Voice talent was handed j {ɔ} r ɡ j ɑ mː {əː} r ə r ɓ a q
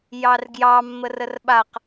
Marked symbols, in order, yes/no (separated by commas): no, no